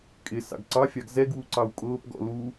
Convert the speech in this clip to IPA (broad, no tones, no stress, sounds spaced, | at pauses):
kʼ ɪ s ɑ̰ ɡ ǀ ɑ fʲ ɑ ɡ z ɛ ɡ w u ǀ ɑ w kʼ ʊː p ɡ ɔ̰ l u